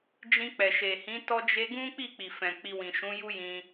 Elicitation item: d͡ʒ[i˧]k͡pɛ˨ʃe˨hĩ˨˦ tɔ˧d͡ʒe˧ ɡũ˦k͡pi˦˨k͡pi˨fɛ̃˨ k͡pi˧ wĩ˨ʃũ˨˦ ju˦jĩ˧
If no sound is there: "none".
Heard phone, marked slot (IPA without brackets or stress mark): ĩ˧